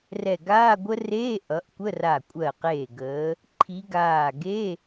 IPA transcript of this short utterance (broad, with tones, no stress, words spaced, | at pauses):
rɛ˧˩ɡaː˧˥˧ɡʷə˦˥ reː˧˥˧ʔʌ˨˦ʔkʷə˧˥˧ra˧˩ kʷʼɜ˧˩qeː˧˩ ɡəː˨˦ | ǃʰi˨˦ɡaː˧˩ɡe˧˥˧